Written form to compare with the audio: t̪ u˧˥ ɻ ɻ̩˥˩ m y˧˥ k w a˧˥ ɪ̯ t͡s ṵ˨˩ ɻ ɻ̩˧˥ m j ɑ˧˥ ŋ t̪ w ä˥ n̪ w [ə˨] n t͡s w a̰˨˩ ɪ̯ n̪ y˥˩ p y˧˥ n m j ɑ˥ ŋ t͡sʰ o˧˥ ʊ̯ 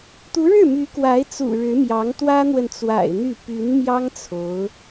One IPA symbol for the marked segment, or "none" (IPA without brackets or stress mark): ə˨